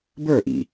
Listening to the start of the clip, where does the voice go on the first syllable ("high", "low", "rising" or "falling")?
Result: falling